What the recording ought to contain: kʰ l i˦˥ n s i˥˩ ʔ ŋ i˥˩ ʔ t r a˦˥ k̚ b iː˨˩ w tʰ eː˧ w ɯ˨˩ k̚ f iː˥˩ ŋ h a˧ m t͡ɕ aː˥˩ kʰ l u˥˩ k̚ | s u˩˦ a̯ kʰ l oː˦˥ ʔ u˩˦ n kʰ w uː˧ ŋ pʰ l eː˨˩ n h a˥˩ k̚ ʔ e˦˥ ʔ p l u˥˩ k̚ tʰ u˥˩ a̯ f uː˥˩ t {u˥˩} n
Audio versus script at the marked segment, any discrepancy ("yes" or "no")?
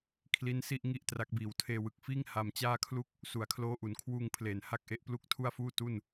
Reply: no